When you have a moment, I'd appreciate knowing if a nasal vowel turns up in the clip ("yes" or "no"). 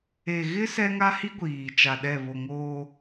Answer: no